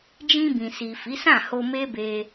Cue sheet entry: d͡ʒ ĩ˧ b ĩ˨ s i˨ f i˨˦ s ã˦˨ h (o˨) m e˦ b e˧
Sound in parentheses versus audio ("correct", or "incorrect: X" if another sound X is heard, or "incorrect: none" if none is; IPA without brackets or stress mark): incorrect: o˧